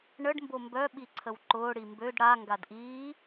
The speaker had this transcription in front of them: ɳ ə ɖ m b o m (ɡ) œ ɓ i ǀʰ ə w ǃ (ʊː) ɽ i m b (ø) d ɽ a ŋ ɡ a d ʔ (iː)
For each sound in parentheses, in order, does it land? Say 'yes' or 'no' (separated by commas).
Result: no, yes, yes, yes